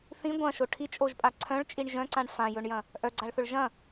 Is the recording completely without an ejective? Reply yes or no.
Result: no